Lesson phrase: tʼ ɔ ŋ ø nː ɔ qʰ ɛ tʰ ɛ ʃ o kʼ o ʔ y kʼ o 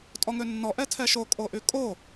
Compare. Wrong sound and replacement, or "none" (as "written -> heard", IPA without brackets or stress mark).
qʰ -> ʔ